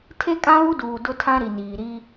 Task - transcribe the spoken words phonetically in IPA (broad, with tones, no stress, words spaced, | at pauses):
tʰe˦kʼã˦βu˦duː˨ dʊ˦tʰã˦ɾi˨niː˨ ɾi˦